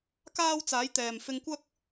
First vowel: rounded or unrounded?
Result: unrounded